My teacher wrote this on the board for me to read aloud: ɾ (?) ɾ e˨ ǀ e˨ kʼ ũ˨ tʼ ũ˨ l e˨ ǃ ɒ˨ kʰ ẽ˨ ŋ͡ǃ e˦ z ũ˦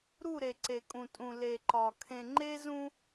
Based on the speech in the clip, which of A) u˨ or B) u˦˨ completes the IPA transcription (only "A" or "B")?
B